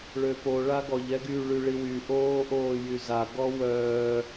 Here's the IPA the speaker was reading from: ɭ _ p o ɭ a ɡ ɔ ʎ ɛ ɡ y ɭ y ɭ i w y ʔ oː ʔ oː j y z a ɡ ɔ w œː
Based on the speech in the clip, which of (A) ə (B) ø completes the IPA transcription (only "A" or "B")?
B